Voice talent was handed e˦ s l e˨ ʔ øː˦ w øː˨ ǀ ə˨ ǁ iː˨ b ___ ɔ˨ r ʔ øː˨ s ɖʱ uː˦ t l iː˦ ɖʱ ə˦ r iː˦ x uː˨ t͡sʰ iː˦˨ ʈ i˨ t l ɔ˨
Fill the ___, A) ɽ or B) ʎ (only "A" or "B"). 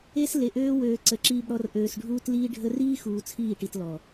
A